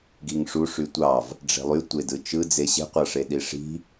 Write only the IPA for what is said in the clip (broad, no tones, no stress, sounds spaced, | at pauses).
ɡ i ŋ ʂ u ʂ y tʷ ɑ v | ɖ͡ʐ e̤ lˠ y tʷ e d ɯ t͡ʃ ɯ d͡z e ɕ e̤ qʷ ɑ ʂ e ɗ i ʂ i̤